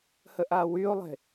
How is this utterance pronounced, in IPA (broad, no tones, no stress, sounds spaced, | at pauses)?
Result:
h ə ʔ a w y o̯ lˠ e̤